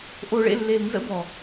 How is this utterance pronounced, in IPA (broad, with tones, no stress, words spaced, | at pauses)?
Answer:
ʔo˨ɭḛ˦˨lːe˨l nzə̰˦bɔ˨